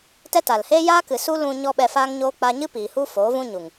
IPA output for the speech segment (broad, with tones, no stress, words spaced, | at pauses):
tɛ˦ ta˨lheː˦ jaː˦kɨ˨su˦ lũ˧ ɲɔ˦ɓɛ˧faː˦ŋɲoː˦ k͡pa˧ɲɨ˦ piː˨hu˦ foː˨˦vũ˦ɲu˨ŋ